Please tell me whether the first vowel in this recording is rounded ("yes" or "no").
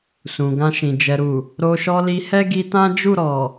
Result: yes